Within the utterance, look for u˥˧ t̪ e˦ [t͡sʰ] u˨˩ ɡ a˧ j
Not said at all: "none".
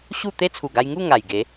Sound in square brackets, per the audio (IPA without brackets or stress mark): t͡sʰ